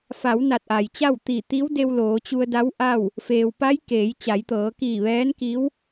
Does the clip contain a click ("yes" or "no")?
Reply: no